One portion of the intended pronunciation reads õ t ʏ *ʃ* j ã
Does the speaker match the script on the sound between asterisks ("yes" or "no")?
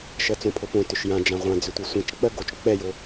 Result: yes